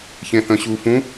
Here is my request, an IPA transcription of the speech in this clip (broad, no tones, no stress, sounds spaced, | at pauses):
ç ẽ θ ə̃ ɕ u f ũ